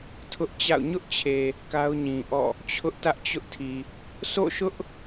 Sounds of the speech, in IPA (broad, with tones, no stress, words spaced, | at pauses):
tʰʊ˦ʔt͡ɕa̰˦˨ʊ̯ ɲʊ˦ʔt͡ɕʰe˨ | ka˦ʊ̯ɲĩ˨ʔɔ̰˦˨ | t͡ɕʰʊ˦ʔtä˦ʔt͡ɕʊ˦ʔtʰi˨ | sʰo̰˦˨ʃʊ˦ʔ